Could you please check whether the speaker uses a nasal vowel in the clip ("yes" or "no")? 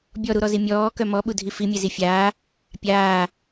no